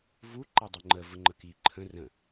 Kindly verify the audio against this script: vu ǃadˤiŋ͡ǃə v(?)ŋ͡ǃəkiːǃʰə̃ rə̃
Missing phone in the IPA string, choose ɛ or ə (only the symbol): ə